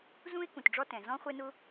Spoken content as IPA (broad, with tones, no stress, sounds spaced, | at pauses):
z ũ˥ e̯ k ũ˩ t ɖ͡ʐ ɔ˦ t ɛ̃˩ z ɔ̃˥ χʷ ɛ˦ n ʊ˦